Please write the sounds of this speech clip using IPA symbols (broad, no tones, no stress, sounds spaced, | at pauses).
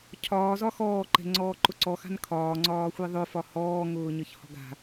cʰ ɒː z ɒ x ɔː ǃ ɛ̤ ŋ͡ǀ ɔː ǃ ʊ ǀ ɔ x a̤ n kʰ ɒː ŋ͡ǀ ɒː xʷ i ðˤ ʊ f ɒ h ɔː ŋ ʊː ɲ ə ç h ɔ̤ ɡ a̤